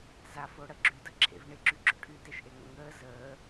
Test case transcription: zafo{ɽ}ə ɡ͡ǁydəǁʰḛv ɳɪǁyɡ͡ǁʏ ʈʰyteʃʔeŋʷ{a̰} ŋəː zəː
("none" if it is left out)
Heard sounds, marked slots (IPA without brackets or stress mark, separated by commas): ɽ, ə̰